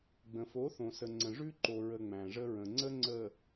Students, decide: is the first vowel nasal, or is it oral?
nasal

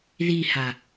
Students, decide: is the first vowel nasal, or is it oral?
oral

